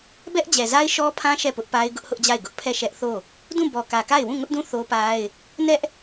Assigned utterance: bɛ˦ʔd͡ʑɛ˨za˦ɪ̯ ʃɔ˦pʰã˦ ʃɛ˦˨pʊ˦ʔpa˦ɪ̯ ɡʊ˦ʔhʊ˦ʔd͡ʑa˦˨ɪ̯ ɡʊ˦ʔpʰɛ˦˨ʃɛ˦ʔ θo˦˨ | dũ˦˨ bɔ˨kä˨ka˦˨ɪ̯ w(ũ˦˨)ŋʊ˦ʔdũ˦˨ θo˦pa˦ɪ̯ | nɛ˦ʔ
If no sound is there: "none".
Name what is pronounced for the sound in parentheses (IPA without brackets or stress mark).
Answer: ũ˦˨